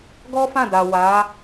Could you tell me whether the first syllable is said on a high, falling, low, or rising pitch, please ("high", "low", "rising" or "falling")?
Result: high